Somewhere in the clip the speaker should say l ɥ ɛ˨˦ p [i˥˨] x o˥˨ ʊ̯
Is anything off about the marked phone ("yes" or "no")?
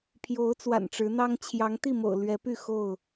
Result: yes